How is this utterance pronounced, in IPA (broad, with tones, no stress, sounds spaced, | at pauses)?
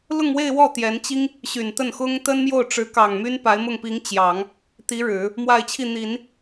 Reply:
l ʊ˥˧ ŋ w e˥˧ ɪ̯ w ɔ˥˩ t̪ j ɛ˧˥ n t͡ɕ i˥ ŋ | ɕ y˨˩ n t̪ ə˥˩ n x ʊ˥ ŋ t̪ ə˥ n m j o˥˩ ʊ̯ ʈ͡ʂ ɻ̩˧˥ k ɑ˨˩ ŋ m y˥ n p a˧˥ ɪ̯ m ʊ˥˩ ŋ p i˧˥ ŋ t͡ɕ j ɑ˨˩˦ ŋ | t̪ i˧˥ ɻ ɻ̩˨˩˦ | m w a˥˧ ɪ̯ t͡ɕʰ i˥˩ n̪ i˨˩˦ n